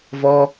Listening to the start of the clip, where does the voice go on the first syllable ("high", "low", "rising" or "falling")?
high